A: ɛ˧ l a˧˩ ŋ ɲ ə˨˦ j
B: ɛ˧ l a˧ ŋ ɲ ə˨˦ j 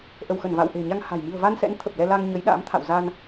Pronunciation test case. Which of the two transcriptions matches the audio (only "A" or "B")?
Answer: B